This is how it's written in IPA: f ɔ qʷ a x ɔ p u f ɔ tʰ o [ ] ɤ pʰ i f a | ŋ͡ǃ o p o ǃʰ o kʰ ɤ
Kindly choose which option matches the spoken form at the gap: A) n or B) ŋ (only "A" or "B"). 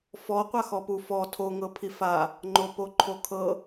B